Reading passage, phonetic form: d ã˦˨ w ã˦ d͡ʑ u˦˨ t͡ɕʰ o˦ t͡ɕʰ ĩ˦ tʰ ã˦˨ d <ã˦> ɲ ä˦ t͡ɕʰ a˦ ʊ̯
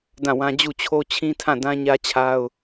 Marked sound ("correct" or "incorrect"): correct